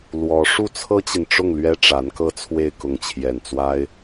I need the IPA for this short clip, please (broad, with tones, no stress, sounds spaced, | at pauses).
l w ɔ˧˥ ʂ u˥˩ t͡sʰ ɤ˥ t͡ɕ i˨ n ʈ͡ʂ ʊ˥˩ ŋ l ɥ ɛ˥ ʈ͡ʂ a˧˥ n k ɤ˥˧ t͡sʰ w e˥˧ ɪ̯ k ʊ˥˧ ŋ t͡ɕʰ j ɛ˥˩ n t͡s w a˥ ɪ̯